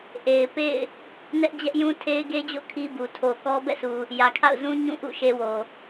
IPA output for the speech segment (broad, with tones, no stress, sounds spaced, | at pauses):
ʔ e˨ ɪ̯ p ḛ˦˨ ɪ̯ | n ɛ˦ ʔ d͡ʑ ɛ˦ ʔ j ũ˦ tʰ e˦ ɪ̯ ɡ e˦ d͡ʑ o̰˦˨ kʰ i˦ b u˨ tʰ o˨ k ɔ˦ b ɛ̰˦˨ sʰ u˨ | j ä˨ kʰ a̰˦˨ ʊ̯ z ũ˦ ɲ ũ˦˨ ʔ ṵ˦˨ ʃ e˦ w o˨